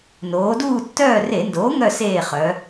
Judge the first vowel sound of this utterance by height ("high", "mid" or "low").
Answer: mid